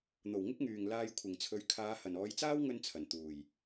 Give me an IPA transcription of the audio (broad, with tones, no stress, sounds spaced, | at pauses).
n̪ o˨˩ w ŋ ɪ˥ k̚ ŋ yː˨˩ ŋ l aː˧ j kʷʰ ɪ˨˩ ŋ t͡sʰ ɵ˨˧ ɥ kʰ aː˨˧ h ɐ˨˩ n ɔː˨˧ j t͡s aː˥ w ŋ ɵ˧ n t͡sʰ ɐ˨˩ n t̪ uː˨˩ j